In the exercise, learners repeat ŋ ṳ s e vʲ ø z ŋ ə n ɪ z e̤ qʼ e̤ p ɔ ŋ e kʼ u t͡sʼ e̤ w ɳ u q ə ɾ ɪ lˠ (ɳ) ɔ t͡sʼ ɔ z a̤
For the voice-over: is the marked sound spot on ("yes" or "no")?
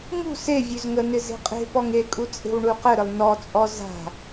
no